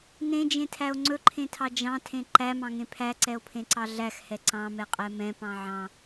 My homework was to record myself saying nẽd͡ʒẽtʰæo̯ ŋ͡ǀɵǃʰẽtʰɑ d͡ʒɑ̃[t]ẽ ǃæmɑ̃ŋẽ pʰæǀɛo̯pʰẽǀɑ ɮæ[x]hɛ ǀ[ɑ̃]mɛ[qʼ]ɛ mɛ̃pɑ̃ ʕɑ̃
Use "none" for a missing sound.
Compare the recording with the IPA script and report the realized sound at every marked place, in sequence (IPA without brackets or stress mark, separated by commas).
tʰ, x, ɑ̃, qʼ